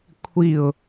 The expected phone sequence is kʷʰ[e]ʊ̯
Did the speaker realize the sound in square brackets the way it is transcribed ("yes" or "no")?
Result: no